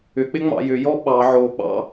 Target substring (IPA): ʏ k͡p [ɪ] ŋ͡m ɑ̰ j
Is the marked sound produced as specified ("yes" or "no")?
yes